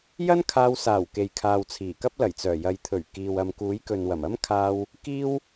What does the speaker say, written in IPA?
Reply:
j ɐ˥ n kʰ aː˧ w s aː˨˩ w k e˨ j kʰ aː˨ w t͡sʰ iː˨˩ k ɐ˥ p̚ l ɐ˨˩ j t͡s œː˨˩ j ɐ˨ j t̪ʰ ɵ˨˩ ɥ k iː˨ w ɐ˨ m k uː˨˥ j k ɵ˨ n w ɐ˨˩ m ɐ˥ m kʰ aː˧ w | k iː˥ w

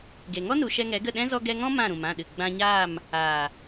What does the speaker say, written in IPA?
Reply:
ɡ e˨ ŋ ɔ˦ n u˨ ʃ ɛ˧ ŋ ɛ˨˦ ɡ ə˦˨ ɗ ɛ̃˦ z ɔ˦ ɡ ɛ˧ ŋ ɔ̃˦ m ã˦˨ ɾ ũ˨ m ã˦˨ ɗ ɨ˨ ɡ͡b ã˧ ɲ aː˦˨ m | aː˨

